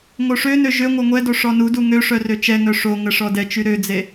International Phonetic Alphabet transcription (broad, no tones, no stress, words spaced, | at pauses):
ŋoʂønø ʒø ŋʷœŋʷɛdo ʂɔnudu ŋøʂœ røt͡ʃɛŋœ ʂoŋə ʂɔdɛt͡ʃy ɾød͡ze